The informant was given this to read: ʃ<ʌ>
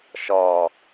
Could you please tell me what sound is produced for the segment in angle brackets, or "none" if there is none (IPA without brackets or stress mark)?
ɔ